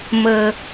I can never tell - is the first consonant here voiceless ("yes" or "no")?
no